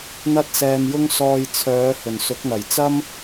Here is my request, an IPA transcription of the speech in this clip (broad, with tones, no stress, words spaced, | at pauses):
n̪ɐ˥t̚sɛː˧m jʊ˥ŋsɔː˧j t͡sʰœː˨˧ hɵ˨˩nsʊ˨˥k̚n̪ɐ˨˩j t͡sɐ˥m